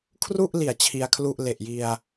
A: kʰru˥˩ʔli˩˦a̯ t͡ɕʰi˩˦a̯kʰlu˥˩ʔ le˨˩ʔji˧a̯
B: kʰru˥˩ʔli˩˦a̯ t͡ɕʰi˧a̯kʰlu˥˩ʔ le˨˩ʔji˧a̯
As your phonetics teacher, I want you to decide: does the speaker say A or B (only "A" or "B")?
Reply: B